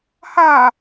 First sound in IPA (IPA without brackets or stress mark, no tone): h